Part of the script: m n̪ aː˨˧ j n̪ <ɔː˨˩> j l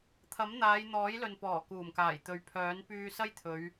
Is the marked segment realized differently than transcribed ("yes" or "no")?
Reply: yes